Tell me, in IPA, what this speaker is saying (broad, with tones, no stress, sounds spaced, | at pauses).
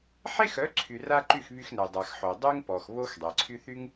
ħ e˦ x œ˨˦ ǀʰ y˨ r a˧ ǃ y˦˨ x β y˧ x n ɛ˨ dˤ a˨ x ħ o˨ dˤ y˦ ŋ p ɔ˨ x β o˦ x dˤ ɛ˨ ǀʰ y˦ θ y˦ ŋ